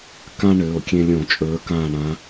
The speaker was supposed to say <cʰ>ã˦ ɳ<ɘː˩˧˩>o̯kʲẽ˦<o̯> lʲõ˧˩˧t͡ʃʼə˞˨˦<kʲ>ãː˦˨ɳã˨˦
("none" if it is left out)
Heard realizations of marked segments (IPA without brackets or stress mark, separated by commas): k, ɘː˩˧˩, none, k